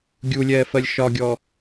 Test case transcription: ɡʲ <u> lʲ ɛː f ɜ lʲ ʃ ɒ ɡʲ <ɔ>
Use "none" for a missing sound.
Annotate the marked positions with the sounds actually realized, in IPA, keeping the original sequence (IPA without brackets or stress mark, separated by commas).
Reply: u, ɔ